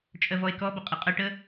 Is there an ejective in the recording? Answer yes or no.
yes